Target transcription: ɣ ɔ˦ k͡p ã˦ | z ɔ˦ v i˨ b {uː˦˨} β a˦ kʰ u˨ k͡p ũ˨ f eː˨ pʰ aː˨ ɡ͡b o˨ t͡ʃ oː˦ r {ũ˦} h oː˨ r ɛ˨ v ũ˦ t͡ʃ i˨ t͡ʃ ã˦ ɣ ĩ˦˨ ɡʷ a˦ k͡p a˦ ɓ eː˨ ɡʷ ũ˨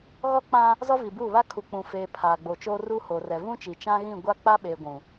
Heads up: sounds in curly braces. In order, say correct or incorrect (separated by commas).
correct, incorrect